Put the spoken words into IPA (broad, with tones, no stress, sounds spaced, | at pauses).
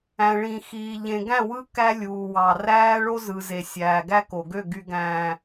æ̃˨ ɭ ĩ˨ x iː˨ ʎ ẽ˨ ɡ æ̃˦˨ w ɯ˦ k æ˦ lʲ uː˨ w ɑ˨ r æː˦ ɭ o˦ z ɯ˨ z e˨ sʲ æː˨ ɡ æ˦ k o˨ ɡ ø˦˨ ɡ y˨ ɡ æ̃ː˨